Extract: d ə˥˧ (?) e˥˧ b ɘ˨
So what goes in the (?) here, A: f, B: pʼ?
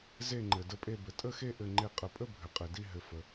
B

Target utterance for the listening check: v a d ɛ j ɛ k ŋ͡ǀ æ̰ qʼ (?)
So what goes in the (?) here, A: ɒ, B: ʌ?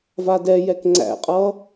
B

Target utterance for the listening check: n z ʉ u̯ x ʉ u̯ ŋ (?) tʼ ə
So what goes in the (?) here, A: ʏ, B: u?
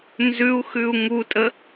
B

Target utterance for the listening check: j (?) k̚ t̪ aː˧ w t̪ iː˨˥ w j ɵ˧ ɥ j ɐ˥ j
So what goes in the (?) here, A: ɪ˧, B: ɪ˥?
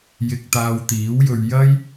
A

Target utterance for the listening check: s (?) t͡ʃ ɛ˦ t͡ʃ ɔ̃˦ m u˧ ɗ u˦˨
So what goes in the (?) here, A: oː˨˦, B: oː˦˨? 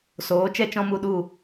A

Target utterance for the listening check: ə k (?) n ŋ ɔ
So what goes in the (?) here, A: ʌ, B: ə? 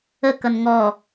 A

